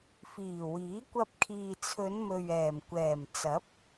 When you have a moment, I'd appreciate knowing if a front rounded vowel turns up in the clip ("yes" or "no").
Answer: no